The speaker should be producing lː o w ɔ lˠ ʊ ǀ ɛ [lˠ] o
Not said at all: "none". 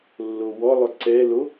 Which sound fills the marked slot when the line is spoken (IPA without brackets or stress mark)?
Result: l